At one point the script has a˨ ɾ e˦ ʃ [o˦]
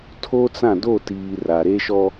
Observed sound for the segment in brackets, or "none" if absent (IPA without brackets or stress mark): ɔ˦